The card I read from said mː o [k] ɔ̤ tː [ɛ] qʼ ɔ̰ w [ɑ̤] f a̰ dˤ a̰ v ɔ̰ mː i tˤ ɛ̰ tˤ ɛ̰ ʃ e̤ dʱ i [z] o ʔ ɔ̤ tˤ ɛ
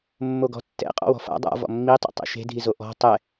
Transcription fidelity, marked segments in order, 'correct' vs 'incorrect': incorrect, incorrect, incorrect, correct

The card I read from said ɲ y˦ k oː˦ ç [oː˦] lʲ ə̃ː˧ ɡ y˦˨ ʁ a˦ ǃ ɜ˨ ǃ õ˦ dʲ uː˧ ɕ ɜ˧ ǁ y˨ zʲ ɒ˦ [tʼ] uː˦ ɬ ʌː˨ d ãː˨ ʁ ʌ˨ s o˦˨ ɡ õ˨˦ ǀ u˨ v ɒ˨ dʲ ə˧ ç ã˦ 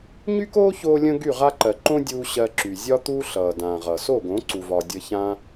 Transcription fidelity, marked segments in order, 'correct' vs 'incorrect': incorrect, incorrect

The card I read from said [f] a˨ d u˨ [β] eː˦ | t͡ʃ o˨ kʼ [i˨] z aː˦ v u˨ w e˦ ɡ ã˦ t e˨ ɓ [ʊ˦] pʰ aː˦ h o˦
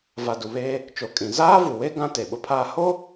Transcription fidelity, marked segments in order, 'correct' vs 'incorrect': incorrect, correct, incorrect, correct

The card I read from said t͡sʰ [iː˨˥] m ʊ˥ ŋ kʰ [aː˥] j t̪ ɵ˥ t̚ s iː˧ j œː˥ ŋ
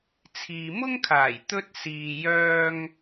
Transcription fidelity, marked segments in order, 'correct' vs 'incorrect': incorrect, incorrect

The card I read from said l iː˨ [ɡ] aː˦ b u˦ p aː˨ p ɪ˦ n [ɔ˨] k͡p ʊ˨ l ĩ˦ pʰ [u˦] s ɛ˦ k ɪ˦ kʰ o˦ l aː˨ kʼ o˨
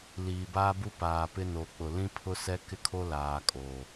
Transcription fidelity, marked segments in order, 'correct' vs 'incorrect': incorrect, incorrect, incorrect

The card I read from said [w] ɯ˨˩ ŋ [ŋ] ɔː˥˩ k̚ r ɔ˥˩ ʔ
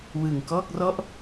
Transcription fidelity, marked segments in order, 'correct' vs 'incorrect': correct, incorrect

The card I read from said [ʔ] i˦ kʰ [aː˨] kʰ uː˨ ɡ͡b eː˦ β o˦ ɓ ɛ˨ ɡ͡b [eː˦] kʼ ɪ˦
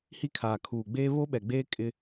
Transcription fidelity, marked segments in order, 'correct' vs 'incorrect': incorrect, correct, correct

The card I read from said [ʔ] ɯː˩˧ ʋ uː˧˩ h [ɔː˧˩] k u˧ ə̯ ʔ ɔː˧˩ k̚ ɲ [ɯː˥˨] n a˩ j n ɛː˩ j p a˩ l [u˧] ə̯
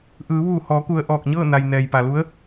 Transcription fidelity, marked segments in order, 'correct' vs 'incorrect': correct, incorrect, incorrect, incorrect

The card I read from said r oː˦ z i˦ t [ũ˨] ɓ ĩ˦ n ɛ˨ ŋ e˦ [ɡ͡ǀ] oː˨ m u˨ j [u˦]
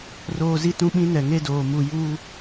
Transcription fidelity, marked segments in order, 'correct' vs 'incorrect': incorrect, incorrect, incorrect

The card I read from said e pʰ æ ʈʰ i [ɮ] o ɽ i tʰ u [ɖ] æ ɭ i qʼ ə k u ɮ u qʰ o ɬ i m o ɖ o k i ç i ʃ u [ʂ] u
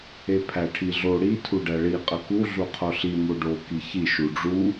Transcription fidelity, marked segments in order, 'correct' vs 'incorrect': correct, correct, incorrect

